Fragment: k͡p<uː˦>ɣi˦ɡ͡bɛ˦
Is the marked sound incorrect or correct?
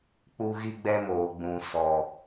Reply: incorrect